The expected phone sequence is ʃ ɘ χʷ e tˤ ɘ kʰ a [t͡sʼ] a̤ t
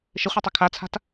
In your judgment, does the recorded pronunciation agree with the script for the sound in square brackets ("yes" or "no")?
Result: no